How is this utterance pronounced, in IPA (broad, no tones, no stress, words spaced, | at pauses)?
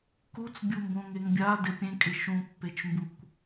kut͡sbʲumbõ ŋeŋbʲa dɪpʲẽkʼɪ ʃũpːet͡ʃmbukʷ